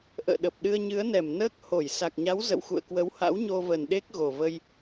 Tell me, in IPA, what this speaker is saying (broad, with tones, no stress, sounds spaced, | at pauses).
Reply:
ʔ ə̰ː˧˨ ɗ ə˨˩ p̚ ɗ ɨ˧ ə̯ ɲ ɨ˨˦ ə̯ n ɛ˧˩ m n əː˦˥ k̚ h o˧˩ j s a˨˩ k̚ ɲ a˨˦ w z ə̰˧˨ w x ṵ˧˨ ə̯ k w ə˨˦ w h a̰˧˥ w ɲ o˧ v ə˨˩ n ɗ e˦˥ k̚ ɣ o˨˩ v ə˧ j